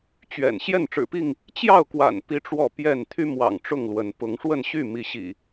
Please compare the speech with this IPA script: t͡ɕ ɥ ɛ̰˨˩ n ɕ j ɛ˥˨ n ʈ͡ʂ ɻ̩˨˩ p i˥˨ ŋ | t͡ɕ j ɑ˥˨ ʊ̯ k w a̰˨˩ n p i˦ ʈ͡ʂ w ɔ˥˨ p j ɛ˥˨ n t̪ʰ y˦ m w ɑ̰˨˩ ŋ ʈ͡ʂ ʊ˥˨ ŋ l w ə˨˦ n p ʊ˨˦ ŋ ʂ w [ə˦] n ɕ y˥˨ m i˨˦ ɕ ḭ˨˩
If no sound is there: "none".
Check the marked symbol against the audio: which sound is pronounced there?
ə˥˨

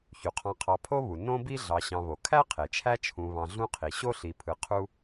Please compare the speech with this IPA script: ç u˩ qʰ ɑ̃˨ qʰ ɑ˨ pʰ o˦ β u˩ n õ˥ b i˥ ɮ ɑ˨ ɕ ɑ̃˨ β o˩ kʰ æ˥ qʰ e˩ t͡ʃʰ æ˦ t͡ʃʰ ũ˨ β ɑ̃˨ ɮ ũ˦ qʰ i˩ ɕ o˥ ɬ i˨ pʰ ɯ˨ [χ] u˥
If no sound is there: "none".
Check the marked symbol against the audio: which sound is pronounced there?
qʰ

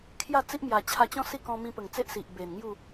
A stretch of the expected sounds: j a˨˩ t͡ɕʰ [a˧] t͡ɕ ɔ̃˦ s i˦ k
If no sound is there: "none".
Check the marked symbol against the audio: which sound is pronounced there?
a˧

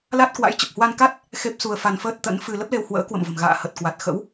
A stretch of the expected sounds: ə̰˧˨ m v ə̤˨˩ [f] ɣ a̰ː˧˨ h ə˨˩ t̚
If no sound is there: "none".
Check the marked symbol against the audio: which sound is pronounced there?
m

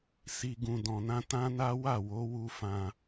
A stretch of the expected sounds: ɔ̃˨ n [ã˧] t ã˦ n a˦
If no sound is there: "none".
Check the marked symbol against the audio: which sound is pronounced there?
ã˧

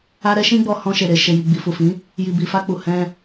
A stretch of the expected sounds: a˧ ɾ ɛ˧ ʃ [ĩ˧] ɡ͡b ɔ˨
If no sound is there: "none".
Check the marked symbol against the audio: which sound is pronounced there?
ĩ˧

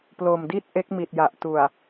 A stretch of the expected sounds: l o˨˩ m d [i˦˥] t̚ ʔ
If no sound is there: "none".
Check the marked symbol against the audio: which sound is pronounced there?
i˥˩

